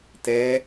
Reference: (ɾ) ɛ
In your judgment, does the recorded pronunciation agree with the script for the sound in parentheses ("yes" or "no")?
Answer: no